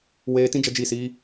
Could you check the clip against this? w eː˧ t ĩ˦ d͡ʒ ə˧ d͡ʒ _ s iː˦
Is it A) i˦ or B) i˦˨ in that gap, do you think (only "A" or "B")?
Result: B